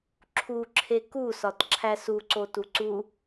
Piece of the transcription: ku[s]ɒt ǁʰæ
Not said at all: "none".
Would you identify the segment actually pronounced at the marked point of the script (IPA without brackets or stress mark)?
s